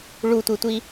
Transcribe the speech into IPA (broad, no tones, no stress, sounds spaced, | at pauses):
ɭ u tʷ i tʷ i